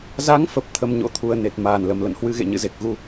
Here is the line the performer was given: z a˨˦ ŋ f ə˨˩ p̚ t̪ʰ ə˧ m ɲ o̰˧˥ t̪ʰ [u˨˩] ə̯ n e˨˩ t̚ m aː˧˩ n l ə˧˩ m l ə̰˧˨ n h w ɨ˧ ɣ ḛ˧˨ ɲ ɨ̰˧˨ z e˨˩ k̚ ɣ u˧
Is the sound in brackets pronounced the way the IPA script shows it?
yes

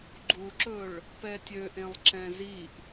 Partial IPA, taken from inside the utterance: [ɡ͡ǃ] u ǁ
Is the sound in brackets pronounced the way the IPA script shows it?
yes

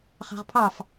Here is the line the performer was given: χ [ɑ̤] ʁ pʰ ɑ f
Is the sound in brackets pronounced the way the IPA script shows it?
yes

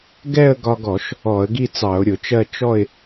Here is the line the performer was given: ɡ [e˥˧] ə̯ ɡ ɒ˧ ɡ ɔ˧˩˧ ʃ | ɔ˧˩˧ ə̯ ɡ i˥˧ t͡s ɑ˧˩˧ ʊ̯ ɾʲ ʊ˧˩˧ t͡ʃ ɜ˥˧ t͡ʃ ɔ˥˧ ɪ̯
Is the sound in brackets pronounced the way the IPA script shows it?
no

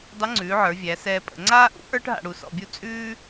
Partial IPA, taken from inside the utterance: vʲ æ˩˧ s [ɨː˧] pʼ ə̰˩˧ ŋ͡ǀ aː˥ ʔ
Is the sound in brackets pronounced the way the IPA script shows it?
no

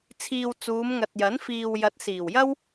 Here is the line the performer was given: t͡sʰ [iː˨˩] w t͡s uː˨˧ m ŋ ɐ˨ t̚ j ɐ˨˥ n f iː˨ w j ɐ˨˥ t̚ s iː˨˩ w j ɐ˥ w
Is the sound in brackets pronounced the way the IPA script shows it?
no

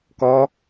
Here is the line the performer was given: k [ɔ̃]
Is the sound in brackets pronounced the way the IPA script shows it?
no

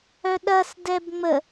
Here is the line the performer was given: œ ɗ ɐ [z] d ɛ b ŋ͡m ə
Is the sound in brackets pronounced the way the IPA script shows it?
no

